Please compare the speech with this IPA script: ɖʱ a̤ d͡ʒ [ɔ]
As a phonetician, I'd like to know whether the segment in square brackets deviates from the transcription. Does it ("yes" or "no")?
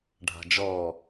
yes